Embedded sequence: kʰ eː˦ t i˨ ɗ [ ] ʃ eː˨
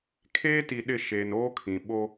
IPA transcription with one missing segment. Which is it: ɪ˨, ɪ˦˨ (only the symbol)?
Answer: ɪ˦˨